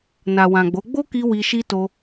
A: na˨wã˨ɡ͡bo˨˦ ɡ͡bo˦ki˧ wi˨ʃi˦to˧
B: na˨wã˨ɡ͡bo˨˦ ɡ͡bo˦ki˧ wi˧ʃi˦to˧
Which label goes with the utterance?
B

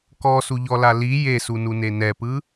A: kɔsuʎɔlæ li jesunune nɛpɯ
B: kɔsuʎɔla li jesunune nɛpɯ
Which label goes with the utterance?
B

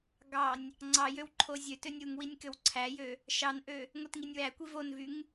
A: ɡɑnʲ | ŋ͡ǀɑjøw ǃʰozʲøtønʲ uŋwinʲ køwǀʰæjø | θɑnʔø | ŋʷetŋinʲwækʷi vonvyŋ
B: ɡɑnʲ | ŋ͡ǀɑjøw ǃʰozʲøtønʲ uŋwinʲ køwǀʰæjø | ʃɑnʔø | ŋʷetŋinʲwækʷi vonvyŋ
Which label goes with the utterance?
B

